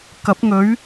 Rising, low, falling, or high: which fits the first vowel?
rising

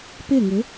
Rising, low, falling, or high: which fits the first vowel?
falling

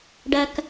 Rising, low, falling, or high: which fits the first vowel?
low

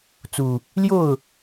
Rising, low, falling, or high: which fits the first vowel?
low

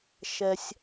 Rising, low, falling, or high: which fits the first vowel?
low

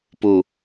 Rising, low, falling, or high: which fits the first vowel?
low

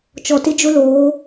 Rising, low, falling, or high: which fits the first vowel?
low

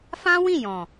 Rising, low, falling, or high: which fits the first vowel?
high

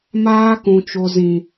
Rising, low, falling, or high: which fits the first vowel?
high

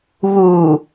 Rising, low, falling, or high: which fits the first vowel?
low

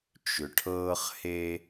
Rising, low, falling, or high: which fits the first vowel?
low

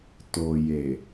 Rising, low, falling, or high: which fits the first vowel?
low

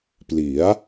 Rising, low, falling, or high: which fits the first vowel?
rising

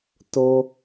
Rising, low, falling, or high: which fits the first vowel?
low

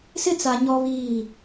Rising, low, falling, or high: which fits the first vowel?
high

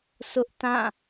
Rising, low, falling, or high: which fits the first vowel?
high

